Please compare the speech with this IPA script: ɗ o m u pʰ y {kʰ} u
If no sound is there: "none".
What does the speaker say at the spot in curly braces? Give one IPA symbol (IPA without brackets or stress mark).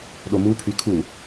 kʰ